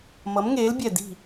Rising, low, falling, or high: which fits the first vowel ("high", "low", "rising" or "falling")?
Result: rising